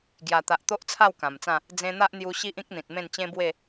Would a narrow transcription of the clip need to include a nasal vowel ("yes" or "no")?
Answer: yes